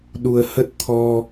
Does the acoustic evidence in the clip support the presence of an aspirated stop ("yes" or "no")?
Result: yes